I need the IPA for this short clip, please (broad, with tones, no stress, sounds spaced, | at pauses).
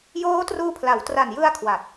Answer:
j oː˦˥ t r uː˧ pʰ l a˩˦ w t r a˨˩ n j ɯ˧ a̯ kʰ w a˨˩ t̚